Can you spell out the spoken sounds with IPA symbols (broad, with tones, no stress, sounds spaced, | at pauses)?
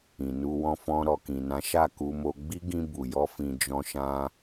ĩ˨ n u˧ w ɔ̃˧ f ɔ̃˧ ɾ ɔ˨ k ĩ˨ n ã˨˦ ʃ a˦˨ k u˧ m o˧ ɡ͡b i˦ ɡ ĩ˧ b u˨ j ɔ˧ f ĩ˧ d͡ʒ ɔ̃˧ ʃ ã˧